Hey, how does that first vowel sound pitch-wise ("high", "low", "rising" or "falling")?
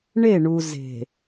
falling